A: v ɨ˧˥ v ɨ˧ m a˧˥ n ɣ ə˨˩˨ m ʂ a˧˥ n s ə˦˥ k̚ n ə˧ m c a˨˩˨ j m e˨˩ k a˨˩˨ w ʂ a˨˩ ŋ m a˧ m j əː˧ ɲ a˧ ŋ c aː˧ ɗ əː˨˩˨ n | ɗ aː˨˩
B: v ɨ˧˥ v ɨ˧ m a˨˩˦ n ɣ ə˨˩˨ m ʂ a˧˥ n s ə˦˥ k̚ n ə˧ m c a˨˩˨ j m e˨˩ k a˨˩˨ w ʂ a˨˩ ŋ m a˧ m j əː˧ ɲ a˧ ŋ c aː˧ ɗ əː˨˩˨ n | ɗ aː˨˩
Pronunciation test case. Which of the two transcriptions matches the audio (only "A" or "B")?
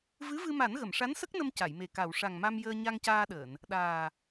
B